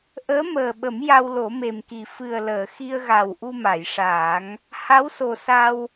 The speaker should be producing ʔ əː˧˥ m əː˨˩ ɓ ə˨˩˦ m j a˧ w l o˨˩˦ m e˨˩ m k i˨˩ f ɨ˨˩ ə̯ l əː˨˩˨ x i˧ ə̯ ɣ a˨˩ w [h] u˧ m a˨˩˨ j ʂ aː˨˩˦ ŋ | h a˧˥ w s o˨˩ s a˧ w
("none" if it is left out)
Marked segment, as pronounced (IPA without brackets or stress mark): ʔ